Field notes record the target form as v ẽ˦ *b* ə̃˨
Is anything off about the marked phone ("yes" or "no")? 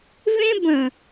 no